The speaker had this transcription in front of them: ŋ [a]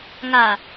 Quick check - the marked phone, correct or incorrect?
correct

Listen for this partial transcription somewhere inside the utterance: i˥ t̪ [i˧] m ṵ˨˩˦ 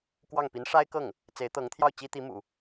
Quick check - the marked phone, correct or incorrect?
incorrect: i˧˥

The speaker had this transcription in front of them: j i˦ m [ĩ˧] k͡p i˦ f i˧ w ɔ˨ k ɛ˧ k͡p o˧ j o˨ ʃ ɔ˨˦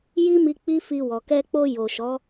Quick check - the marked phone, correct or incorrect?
incorrect: i˧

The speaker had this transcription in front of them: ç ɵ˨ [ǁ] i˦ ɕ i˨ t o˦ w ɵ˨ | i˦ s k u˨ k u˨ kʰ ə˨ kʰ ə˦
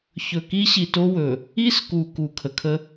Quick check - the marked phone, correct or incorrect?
incorrect: k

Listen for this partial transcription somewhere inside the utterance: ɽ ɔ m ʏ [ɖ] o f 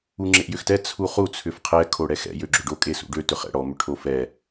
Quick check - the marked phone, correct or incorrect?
incorrect: ʈʰ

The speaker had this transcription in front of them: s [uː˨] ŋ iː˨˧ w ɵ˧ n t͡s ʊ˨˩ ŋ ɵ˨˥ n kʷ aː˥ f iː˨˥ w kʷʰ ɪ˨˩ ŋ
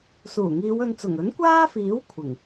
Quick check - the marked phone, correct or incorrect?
incorrect: uː˨˩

